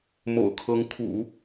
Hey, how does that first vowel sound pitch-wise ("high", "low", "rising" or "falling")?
low